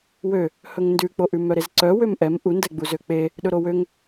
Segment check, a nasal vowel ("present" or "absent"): absent